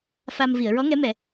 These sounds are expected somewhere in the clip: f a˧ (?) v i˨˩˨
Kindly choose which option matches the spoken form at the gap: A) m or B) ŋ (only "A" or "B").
A